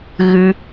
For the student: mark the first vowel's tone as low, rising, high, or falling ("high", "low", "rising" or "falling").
high